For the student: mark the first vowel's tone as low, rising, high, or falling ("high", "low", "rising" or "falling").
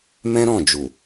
high